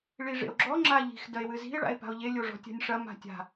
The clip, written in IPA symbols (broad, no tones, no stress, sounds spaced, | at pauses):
ɭ i ʐ ḛ o̯ ɡ͡ǁ ɔ ŋ͡ǁ a ʎ i̤ x d ɐ e̯ w ɨ z i̤ e̯ ɭ a̰ e̯ p a̤ o̯ ʎ e lʲ o ʐ ɔ̤ tʲ a̤ nʲ ʂ ɐ m a̤ tʲ a̤